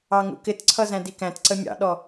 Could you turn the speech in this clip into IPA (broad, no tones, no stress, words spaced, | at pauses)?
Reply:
ɑŋṵkɪtǀʰʌ zæ̃dikæ̃tǀə mʲɑ̰ɗɔ